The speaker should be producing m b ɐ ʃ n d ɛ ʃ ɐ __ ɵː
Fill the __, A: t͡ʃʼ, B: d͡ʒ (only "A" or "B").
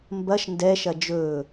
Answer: B